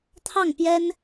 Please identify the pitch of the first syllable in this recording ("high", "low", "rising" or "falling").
falling